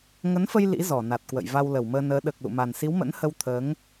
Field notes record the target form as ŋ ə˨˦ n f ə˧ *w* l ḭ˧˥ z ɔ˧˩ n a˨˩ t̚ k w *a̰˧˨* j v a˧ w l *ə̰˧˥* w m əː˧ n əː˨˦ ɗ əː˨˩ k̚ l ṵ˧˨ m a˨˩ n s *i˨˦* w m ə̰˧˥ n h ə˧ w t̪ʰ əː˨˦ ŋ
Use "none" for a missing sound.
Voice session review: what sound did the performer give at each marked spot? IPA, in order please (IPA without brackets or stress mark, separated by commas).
j, ə̰˧˨, ə˧˩, i˨˦